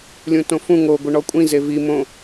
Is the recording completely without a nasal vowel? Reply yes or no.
no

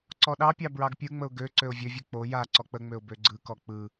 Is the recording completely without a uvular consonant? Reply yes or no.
yes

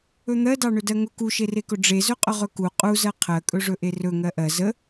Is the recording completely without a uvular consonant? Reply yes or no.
no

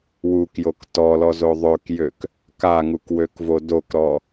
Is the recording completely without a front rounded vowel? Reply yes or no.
no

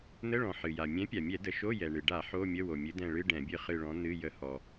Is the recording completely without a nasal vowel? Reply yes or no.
no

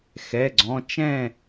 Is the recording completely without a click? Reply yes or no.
no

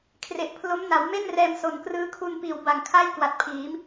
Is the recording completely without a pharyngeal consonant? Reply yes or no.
yes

